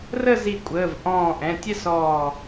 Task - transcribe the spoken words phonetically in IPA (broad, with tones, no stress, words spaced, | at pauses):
rə˥˧zi˧˩ kʷʼəː˩˧˩v ʔɔ̃ː˧˩ʔɛ̃˩˧˩tʲɛ˥˧s ɔː˧˩